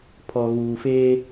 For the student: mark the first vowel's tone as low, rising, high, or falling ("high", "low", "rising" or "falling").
low